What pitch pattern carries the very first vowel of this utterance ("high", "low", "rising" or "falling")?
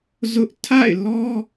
high